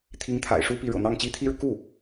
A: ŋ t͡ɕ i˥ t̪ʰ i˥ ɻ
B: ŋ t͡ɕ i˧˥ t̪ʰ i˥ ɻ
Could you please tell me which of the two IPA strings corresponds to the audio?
A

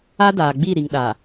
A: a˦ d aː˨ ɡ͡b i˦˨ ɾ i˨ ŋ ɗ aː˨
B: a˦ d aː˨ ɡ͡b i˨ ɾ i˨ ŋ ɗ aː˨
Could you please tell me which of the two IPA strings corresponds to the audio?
A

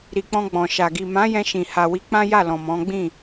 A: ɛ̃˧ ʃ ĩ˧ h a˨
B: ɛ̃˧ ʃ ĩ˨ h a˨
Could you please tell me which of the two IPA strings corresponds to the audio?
B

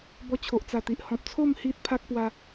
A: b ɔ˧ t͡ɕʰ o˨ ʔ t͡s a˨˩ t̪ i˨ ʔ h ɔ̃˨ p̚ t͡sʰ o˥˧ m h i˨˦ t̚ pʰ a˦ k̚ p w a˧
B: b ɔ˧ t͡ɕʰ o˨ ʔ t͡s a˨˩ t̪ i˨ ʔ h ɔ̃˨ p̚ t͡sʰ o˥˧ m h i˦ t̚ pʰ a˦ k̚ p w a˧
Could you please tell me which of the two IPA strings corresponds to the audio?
B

